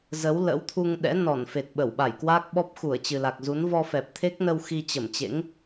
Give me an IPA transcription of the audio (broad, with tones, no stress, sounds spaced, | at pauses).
z ə˨˦ w l ə̰˧˥ w t̪ʰ u˧ ŋ ɗ ɛ̰˧˥ n ɔ˧˩ n f e˨˩ t̚ ɓ ə˧˩ w ɓ a˧˩ j k w aː˦˥ k̚ ɓ ɔ˦˥ p̚ x u˧˩ ə̯ t͡ɕ ɨ˨˩ l a˨˩ k̚ z u˨˦ n v ɔ˧ f ɛ˨˩ p̚ t̪ʰ e˦˥ k̚ n ə˧ w x i˧ t͡ɕ ə˧˩ m t͡ɕ ḛ˧˥ ŋ